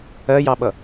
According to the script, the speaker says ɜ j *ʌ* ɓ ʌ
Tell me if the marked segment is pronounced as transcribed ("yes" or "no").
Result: no